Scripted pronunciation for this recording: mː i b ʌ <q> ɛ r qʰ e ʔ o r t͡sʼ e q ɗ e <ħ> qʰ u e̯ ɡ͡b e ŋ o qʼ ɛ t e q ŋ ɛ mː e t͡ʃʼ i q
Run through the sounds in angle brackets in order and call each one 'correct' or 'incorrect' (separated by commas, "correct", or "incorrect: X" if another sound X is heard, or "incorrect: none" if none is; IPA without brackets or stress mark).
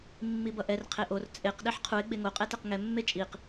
incorrect: ʔ, correct